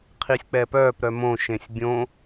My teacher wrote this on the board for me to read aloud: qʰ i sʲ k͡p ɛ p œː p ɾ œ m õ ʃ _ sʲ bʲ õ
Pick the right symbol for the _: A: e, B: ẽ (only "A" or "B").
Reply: B